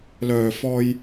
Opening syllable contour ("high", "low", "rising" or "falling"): low